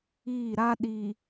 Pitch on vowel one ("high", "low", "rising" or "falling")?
falling